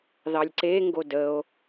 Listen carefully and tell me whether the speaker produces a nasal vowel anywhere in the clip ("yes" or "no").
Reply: no